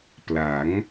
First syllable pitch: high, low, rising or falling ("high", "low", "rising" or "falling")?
rising